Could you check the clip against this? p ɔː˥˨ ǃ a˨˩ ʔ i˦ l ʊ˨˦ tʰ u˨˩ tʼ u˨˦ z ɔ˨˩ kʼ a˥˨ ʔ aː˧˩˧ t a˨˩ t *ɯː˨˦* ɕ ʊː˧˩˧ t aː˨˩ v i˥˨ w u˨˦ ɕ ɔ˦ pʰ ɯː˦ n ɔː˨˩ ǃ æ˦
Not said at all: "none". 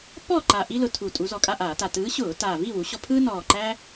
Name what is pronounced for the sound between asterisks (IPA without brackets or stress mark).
ɯː˨˦